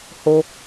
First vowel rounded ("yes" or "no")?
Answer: yes